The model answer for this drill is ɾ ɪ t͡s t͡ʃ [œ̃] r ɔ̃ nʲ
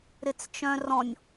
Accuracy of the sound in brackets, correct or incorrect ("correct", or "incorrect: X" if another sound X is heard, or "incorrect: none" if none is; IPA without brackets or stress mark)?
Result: correct